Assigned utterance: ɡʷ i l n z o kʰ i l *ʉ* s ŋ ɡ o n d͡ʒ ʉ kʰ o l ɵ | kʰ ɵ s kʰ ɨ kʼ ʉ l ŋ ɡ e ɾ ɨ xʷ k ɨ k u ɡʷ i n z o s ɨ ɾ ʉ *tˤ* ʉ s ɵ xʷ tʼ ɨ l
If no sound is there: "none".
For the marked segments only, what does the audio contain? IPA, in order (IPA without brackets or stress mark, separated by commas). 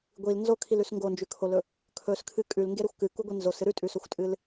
ʉ, tʼ